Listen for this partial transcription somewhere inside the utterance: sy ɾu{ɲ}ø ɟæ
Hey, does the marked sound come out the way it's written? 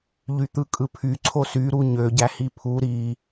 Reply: yes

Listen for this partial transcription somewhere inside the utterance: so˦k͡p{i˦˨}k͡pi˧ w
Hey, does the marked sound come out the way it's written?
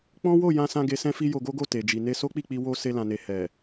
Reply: yes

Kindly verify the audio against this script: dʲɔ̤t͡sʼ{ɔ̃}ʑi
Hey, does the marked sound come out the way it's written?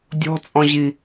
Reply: yes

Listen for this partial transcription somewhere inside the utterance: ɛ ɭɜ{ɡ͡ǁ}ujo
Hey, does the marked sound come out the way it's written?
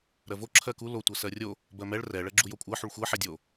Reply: yes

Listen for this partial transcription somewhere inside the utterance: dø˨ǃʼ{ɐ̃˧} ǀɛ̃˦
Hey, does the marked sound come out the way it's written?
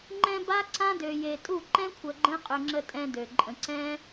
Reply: no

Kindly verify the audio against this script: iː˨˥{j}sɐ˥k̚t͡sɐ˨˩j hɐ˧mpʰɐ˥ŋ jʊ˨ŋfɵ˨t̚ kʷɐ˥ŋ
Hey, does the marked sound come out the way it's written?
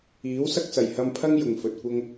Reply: no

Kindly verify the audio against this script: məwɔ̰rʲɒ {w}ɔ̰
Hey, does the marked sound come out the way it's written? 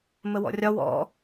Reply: yes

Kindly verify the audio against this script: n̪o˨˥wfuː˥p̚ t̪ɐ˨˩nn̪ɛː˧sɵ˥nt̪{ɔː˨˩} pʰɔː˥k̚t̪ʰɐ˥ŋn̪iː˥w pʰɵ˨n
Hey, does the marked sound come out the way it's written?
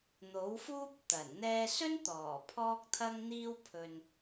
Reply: yes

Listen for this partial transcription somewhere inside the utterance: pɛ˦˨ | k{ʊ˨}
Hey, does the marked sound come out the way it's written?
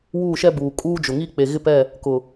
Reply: yes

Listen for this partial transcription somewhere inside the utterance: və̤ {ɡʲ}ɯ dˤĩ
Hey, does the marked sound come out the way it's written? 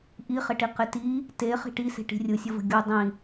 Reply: yes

